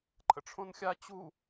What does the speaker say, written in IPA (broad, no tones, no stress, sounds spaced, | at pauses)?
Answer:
ǃʰ ə̰ ʈ͡ʂʰ õ n xʲ a t͡ɕ u